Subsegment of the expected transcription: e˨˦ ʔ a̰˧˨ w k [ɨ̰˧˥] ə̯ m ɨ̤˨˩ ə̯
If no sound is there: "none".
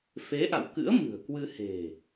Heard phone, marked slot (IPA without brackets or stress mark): ɨ̰˧˥